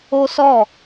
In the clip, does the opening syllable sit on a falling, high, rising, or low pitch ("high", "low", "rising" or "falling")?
high